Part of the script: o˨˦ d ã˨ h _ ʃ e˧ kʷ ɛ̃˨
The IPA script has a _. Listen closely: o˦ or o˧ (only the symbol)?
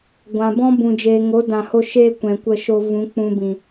o˧